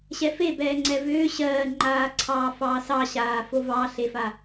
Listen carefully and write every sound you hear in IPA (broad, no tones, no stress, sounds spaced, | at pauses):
ɕ ɛ f e b ɛː ŋ͡ǀ ɛ v ʏː ɕ ɜː ŋ͡ǃ aː ǀʰ ɑː f ɑː s ɑ ɕ aː f o v ɑ ɬ e f a